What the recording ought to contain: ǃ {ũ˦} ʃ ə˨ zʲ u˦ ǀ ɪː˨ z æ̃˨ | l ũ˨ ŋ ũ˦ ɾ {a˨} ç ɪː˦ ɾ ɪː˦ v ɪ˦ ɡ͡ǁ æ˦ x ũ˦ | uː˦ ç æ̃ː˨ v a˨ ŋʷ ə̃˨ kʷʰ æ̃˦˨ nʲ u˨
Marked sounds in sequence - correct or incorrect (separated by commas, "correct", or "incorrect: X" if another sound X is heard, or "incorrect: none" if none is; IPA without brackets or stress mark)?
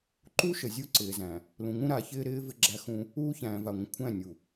incorrect: u˦, correct